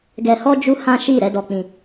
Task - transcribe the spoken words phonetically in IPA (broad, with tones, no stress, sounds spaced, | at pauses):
ɡ ɛ˧ h ɔ˦ d͡ʒ u˦ h ã˦ ʃ i˦˨ ɾ ɛ˨˦ d ɔ˧ k͡p ĩ˧